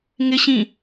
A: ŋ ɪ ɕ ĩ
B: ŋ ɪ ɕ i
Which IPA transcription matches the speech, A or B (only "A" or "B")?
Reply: A